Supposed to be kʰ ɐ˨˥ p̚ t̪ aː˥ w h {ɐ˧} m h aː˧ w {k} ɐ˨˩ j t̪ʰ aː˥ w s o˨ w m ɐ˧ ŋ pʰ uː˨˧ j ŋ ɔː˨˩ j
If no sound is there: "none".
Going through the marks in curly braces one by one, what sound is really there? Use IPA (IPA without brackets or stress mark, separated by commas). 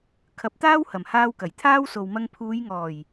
ɐ˨˩, k